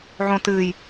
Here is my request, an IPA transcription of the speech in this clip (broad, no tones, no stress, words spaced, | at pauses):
ʕõ tɨːj